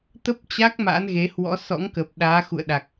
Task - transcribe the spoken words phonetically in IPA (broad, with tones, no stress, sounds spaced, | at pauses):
t̪ ə˦˥ p̚ t͡ɕ a˦˥ k̚ m a̰˧˥ n ɣ e˨˦ h w ɔ̰˧˥ s ɔ̰˧˥ ŋ k ə˨˩ p̚ ɗ aː˨˦ x ṵ˧˨ ə̯ ɗ a˨˩ k̚